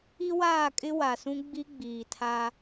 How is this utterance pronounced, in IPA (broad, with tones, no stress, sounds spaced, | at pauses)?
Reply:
i˦ w aː˦˨ kʼ ɪ˦ w a˨ s ũ˦ ɡ͡b i˦ ɡ͡b iː˨ tʰ a˦